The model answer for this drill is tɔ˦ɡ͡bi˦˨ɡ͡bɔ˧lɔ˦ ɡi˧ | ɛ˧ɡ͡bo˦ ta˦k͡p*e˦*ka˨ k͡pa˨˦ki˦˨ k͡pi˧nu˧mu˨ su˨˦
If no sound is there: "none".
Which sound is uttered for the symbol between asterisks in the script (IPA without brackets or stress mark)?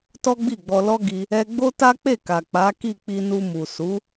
e˦˨